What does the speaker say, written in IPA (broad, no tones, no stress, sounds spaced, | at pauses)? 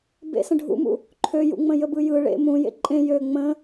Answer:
b ḛ s ə̃ ɖʱ ṵ m ṵ | ǃʰ ø j ṵ ŋ͡m ə̃ j ə b ɯ j ɯ ɭ ḛ m ũ j ḛ ǃʼ ẽ j ø ŋ͡m ə̃